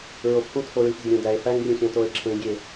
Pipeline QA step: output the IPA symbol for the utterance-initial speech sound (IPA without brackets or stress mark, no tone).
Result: ɹ